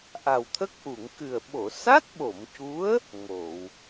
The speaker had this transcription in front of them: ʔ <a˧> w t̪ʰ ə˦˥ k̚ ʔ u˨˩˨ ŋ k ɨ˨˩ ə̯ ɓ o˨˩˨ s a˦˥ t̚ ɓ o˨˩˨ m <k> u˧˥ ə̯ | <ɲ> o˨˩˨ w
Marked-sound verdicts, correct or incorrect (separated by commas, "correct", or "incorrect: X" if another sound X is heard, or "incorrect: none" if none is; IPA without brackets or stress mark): incorrect: a˨˩, incorrect: c, incorrect: ŋ